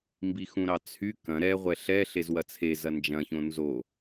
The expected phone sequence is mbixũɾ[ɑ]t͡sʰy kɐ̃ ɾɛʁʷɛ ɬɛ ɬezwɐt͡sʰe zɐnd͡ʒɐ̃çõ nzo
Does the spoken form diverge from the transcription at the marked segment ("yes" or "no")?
no